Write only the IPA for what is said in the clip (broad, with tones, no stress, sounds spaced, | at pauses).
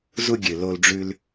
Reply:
z u˧ ɡʲ ɨ˨ l o˧ l ɖ͡ʐ ʉ˧ l